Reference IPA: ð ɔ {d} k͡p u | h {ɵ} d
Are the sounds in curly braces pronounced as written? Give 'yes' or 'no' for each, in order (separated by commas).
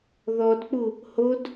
yes, no